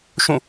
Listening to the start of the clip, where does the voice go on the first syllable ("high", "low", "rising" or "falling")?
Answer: falling